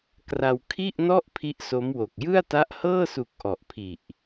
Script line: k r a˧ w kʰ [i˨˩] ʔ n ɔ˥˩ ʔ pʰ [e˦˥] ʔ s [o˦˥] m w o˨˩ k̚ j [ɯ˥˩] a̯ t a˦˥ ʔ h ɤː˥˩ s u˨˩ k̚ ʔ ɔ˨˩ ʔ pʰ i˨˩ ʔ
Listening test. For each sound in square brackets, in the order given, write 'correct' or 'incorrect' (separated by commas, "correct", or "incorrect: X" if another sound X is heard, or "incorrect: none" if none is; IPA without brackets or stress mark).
incorrect: i˥˩, incorrect: i˦˥, correct, correct